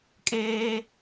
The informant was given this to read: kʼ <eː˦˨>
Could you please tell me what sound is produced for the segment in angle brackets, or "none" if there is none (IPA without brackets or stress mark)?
eː˦